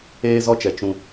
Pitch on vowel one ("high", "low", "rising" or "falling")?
high